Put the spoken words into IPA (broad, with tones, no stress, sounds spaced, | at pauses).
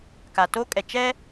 k a˨ t o˦ kʼ ɛ˨ t͡ʃ ɛ˦